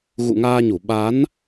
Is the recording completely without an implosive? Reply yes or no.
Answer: no